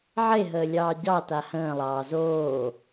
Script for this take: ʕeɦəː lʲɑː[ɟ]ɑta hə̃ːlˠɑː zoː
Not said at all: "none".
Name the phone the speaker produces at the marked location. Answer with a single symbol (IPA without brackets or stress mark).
ɟ